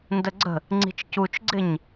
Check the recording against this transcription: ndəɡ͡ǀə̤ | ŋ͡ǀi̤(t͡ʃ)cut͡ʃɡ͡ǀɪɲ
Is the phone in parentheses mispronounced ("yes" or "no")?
no